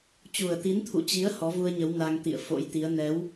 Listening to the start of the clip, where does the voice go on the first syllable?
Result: low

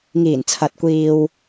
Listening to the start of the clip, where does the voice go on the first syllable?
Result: low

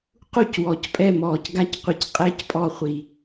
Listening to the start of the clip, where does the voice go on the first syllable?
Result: falling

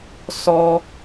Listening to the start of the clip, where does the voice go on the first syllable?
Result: high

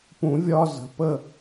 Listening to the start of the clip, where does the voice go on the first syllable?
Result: rising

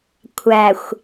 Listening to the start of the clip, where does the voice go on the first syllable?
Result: low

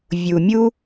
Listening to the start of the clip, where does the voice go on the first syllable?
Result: low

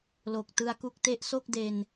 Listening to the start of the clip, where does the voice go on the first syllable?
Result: low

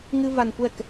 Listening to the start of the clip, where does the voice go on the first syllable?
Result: high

